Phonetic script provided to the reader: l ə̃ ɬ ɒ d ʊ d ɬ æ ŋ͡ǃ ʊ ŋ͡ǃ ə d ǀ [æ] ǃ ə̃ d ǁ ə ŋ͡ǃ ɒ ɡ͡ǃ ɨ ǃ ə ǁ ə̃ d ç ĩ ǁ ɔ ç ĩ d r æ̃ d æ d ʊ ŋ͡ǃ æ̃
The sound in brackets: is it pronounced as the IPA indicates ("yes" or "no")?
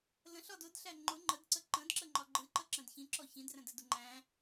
no